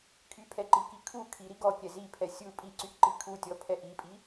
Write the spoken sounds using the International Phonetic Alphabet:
kʰypʰɛǃiki kʰu kʰiɾi ɡɔkʲɛ zipʰɛ sʲu pʼiǀyʔǃi kʰutʲɔpʰɛ ʔipʼi

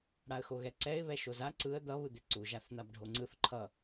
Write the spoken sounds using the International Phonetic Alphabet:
ɽaə̯xoɣɛǀɛɪ̯ βɛʃoza ǀɯə̯ d̪ʌ βɯd̪eǀu ʒaθn̪abɖʱoŋ͡ǀɯθ ǃʰʌ

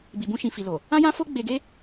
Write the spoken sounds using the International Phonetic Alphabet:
bi˨bũ˧ʃĩ˨ fi˨lo˨ | ã˦jã˦fo˦ ɡ͡be˧ɡe˦

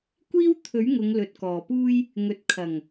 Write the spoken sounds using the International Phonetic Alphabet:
kʷiː˥wt̪ʰɵ˨˥ɥŋʊ˨˧ŋ lɵ˨t̚kɔː˨˩puː˥j | ŋɵ˨t̚kʰɐ˨˩ŋ

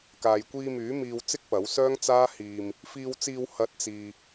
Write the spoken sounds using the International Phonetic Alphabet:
kaː˨jkʷiː˧myː˨˥ miː˧w t͡sɪ˥k̚pɐ˨˥wsœː˥ŋ t͡saː˥hiː˧m | fiː˧wt͡siː˧w hɐ˨˥t̚t͡siː˨

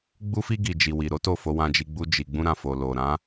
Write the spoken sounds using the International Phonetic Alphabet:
ɡ͡bu˧fi˧ ɡi˨d͡ʒi˨wi˨ɾo˨˦ to˦˨fo˧wã˧d͡ʒi˧ ɡ͡bu˧d͡ʒi˨ ɡ͡bũ˧ɾã˨ fo˨ lo˨ɾã˨˦

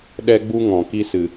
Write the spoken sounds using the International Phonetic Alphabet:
ɗɛ˦ɡ͡bu˦ ŋɔ̃˨ ki˦sɨ˨

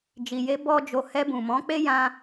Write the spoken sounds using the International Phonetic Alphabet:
d͡ʒi˨je˧ bɔ˦d͡ʒo˧ hɛ˧bũ˨mɔ̃˨˦k͡pe˦ jã˦

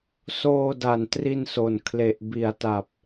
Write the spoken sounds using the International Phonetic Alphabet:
soː˧da˨˩ntri˧nso˨˩n kʰle˨˩ʔbi˨˩a̯ta˨˩p̚

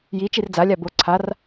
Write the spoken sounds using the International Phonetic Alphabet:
ji t͡ʃird͡zalʲa bo ǀʰar

